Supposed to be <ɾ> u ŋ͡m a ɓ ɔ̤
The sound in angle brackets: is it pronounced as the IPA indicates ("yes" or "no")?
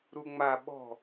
yes